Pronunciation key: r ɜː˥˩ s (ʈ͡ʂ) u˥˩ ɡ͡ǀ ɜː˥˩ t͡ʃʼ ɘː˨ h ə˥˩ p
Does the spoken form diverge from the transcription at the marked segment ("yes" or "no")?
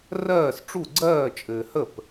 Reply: no